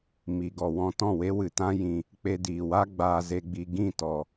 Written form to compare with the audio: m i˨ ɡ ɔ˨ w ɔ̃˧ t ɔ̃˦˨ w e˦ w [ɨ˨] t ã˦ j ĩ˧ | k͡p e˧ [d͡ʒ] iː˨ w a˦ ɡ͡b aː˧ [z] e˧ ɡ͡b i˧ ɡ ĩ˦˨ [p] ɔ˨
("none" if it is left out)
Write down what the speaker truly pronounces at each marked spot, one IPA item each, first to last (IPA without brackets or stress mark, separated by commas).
ɨ˨, d, z, t